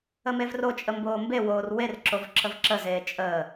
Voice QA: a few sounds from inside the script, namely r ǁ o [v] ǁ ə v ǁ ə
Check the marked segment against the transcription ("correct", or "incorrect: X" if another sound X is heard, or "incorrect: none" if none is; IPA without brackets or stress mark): correct